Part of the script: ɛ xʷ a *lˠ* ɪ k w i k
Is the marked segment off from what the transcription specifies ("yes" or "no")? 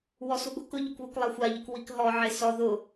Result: yes